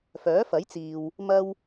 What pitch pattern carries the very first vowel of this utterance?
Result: rising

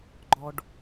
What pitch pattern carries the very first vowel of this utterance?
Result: high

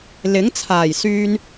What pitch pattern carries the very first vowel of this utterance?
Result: rising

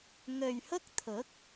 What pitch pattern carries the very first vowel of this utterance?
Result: low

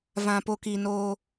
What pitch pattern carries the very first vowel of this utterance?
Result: low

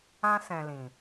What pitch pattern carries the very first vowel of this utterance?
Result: high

